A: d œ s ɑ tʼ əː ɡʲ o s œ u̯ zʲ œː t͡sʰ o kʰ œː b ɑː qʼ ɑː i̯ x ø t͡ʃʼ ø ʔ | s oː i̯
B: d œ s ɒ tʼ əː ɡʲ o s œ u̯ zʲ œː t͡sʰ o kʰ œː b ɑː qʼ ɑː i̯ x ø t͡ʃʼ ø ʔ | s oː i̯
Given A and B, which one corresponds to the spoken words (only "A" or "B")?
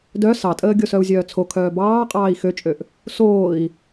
A